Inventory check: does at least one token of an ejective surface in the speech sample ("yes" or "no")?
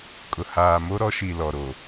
yes